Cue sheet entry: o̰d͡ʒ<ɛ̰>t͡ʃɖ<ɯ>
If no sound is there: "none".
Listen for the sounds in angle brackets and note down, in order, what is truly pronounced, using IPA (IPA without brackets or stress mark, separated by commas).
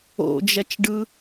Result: ɛ, ɯ